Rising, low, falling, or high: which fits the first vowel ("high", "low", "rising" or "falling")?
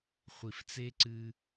low